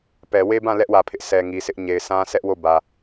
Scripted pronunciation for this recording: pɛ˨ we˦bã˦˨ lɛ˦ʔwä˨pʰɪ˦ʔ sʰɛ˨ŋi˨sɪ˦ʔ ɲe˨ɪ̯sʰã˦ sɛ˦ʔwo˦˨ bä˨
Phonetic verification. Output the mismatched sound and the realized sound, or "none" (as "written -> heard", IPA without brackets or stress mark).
none